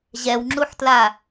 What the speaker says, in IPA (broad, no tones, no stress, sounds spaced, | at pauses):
ʑ ɛ w ŋ͡ǁ u ħ t l a